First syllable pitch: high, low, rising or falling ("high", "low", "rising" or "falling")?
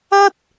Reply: high